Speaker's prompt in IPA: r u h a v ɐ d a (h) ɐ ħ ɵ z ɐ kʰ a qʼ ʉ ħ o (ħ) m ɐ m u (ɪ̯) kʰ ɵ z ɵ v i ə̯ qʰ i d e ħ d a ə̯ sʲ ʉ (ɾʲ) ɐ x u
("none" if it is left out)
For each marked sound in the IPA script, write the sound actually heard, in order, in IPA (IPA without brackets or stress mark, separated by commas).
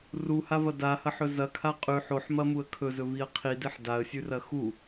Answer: h, ħ, ə̯, r